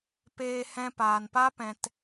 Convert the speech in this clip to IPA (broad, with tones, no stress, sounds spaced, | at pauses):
p eː˧ h ɛ̃˧ p aː˨ n p a˦ p ɛ̃˨ t